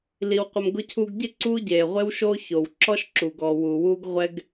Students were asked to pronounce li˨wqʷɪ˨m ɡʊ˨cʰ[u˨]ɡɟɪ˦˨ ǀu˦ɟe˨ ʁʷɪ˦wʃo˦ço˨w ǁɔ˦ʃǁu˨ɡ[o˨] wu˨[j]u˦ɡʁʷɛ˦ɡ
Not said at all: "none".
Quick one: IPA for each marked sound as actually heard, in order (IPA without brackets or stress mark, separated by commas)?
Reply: u˨, ɔ˨, w